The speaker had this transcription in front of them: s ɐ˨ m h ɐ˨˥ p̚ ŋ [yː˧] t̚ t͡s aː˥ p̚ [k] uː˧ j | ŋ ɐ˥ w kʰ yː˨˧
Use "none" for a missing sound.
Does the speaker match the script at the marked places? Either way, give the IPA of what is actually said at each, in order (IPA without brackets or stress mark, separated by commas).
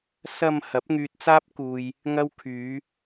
yː˧, k